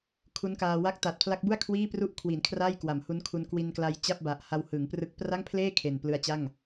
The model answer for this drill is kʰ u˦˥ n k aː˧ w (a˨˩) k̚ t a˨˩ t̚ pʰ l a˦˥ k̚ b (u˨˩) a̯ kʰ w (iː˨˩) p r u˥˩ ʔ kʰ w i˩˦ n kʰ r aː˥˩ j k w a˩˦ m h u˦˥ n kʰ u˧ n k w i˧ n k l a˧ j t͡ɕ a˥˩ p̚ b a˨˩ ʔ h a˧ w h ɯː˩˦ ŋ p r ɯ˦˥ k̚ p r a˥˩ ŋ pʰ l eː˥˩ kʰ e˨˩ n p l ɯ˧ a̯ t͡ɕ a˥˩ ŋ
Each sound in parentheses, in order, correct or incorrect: incorrect, incorrect, incorrect

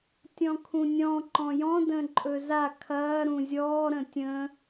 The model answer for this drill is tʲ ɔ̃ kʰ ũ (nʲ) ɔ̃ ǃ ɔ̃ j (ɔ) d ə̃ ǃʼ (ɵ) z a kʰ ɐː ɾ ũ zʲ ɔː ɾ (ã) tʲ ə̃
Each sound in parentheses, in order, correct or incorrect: correct, incorrect, correct, incorrect

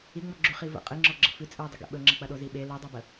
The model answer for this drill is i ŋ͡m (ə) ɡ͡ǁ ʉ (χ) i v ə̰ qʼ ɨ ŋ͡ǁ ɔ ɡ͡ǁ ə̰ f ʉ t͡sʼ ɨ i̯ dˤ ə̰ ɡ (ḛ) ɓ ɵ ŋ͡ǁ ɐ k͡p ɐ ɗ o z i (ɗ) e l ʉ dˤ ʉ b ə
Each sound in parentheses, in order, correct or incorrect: incorrect, correct, correct, incorrect

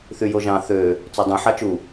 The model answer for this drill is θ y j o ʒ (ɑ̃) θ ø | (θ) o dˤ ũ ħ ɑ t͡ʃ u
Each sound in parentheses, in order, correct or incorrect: correct, incorrect

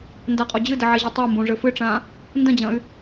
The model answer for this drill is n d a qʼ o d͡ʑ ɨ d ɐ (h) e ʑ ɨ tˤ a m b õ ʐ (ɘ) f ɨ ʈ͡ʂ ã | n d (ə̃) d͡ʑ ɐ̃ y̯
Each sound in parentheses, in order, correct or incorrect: incorrect, correct, incorrect

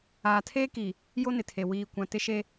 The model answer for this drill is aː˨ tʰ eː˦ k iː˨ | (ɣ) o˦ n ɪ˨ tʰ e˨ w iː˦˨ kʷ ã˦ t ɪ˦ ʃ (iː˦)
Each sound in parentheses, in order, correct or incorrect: incorrect, incorrect

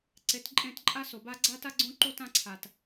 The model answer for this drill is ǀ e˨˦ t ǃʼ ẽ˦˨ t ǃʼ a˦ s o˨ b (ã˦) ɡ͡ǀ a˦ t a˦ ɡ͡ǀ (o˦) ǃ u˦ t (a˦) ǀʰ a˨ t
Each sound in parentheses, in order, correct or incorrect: incorrect, incorrect, incorrect

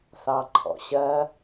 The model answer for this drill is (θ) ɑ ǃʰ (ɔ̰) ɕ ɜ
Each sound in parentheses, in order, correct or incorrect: correct, correct

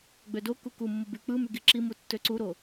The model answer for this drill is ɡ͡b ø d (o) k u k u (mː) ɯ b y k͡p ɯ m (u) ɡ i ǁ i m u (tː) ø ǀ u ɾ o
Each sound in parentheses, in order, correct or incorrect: correct, correct, incorrect, correct

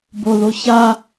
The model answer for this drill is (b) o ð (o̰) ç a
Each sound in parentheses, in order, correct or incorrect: correct, incorrect

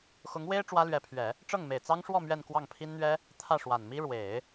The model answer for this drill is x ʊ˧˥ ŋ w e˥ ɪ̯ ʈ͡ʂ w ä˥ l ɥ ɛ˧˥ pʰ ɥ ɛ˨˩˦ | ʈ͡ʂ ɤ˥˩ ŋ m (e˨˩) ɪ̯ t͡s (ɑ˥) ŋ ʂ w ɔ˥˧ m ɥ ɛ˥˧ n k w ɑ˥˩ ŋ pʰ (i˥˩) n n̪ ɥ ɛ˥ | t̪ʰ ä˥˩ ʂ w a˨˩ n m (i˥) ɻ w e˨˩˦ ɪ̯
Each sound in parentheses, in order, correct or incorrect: correct, correct, incorrect, correct

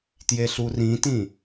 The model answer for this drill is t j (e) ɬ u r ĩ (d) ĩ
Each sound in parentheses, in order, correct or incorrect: correct, incorrect

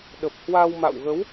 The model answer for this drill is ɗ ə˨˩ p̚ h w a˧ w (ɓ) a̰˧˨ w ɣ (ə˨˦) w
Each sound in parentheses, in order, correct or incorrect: incorrect, correct

